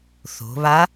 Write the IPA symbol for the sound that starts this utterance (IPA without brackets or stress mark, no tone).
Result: θ